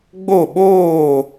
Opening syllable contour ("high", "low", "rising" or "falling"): falling